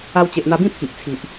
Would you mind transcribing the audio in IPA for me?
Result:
a˧ w t͡ɕ e˨ ʔ n̪ a˧ b ĩ˥˧ pʰ i˨ ʔ t͡sʰ i˨ ʔ

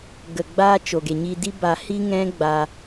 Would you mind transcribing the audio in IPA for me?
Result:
ɡ ə˨ ɡ͡b aː˧ t͡ʃ o˨ ɡ e˨ ɲ i˧ d i˦ b a˧ h i˦ ŋ ɛ̃˦ ɡ͡b a˧

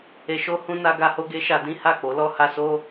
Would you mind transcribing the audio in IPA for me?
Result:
e˨ ʃ o˧ h ũ˧ n a˧ ɡ a˧ h o˦ ɡ e˦ ʃ a˧ d ĩ˦ h a˦˨ k͡p o˨˦ l ɔ˧ h a˧ s o˦

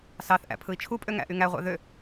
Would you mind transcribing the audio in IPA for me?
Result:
s ɑ θ ʔ æ̰ pʰ ɯ i̯ t͡ʃʰ u pʼ ø ŋ æ̰ ʔ y ŋ æ ʁʷ ɑ̰ ð ø

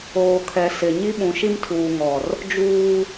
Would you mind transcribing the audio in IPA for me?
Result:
oː˨ kʰ ɛ˨ s ɪ˨ ɲ i˦ ɓ ũ˨ ʃ i˦ m tʰ uː˨ ŋ ɔ˨ r | d͡ʒ uː˦

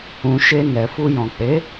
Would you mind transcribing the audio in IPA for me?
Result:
ũ˨ ʃ e˧ n ɛ˨ f u˧ j ɔ̃˨ k͡p e˨˦

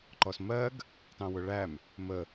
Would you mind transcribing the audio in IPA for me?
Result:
ǃ ɔ s m ɜ ɡ | t ɑ̃ w ʊ ɭ æ m | m ə

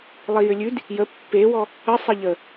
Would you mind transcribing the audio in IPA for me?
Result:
lˠ i j ʏ lʲ ʉ d | j ə pː e w ɔ | ə sˤ ə ʎ ə

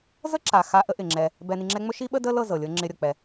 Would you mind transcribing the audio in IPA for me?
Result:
z ə˦ ǁ a˨ x a˧ ʔ ə˦ ʔ ɪ˨ ŋ͡ǁ ɛ˧ | b ɛ˨ n i˨ ŋ͡ǁ ɛ˧ ŋ͡m ɵ˦ ʃ i˦ ɓ ə˦ d ə˦ l ɤ˦˨ z ɤ˨ lʲ ɤ˦ ŋ͡ǁ ɪ˧ ɾʲ ɤ˨ k͡p ɛ˨

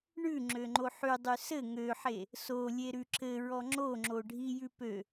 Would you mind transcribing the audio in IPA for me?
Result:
ɳ ʉ ŋ͡ǁ ø ŋ͡ǃ o ħ ʉ dˤ ʉ s ɘ ŋ ø ħ e | s o lʲ e ɾ ʉ ǁ ɘ ɹ ɔ ŋ͡ǁ o ŋ͡ǁ o ɖʱ i j ʉ p ø

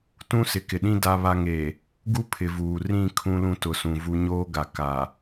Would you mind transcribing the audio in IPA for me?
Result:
t ũ˦ s ɪ˨ k ɪ˨ ɗ ĩ˦ d a˦ β a˦ ŋ e˨ | ɡ u˦ pʰ ɪ˨ v uː˨ r ĩ˦˨ kʰ ũ˦ l ũ˦ t ʊ˨ s ũ˨ v u˦ ɲ oː˦ ɡ a˨ k a˨

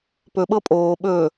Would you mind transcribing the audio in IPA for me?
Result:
p ɵ ɓ ɤ pʼ oː ɓ ɵ

